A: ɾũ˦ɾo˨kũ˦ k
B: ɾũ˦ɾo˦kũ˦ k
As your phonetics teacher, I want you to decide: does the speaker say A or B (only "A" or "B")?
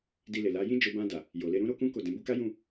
B